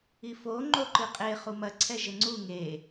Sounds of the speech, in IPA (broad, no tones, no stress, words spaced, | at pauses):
ifo ŋ͡ǃoǃɨqʼe χumɐ ǀʰɛʒɘŋ͡ǀu ŋe